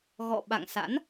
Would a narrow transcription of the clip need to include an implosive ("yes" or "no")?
yes